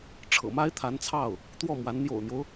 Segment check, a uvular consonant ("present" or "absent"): absent